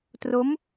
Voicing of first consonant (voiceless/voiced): voiceless